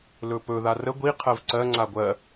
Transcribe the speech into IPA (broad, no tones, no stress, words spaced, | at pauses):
lɵpɵ ðarə ɡʷi qʰɜvǀɜ ŋ͡ǀaɡʷɜ